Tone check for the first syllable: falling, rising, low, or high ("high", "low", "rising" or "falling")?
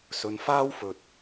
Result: low